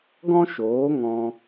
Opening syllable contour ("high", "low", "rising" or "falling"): high